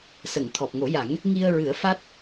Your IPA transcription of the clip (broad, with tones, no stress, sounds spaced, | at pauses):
s ə˨˩˨ ŋ t̪ʰ ɔ˨˩ p̚ ŋ o˨˩˦ j a˨˩˦ ŋ | ŋ i˧ ə̯ ɹ ɨ˨˩˦ ə̯ f a˦˥ t̚